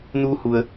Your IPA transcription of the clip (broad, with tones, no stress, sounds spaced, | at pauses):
n uː˧ h u˩ ə̯